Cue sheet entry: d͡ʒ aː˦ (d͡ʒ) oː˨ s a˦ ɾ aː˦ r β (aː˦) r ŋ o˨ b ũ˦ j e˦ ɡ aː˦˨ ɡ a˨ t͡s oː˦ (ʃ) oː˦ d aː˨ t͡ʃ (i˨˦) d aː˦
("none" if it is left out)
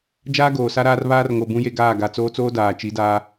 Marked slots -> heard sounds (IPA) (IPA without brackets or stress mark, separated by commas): ɡ, aː˦, t͡s, i˨˦